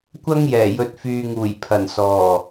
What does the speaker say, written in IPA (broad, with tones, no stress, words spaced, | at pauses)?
kʷɐ˥ŋjɛː˨˩ jɵ˨t̚fyː˨ŋuː˨˩j pʰɐ˨˩nsɔː˨˩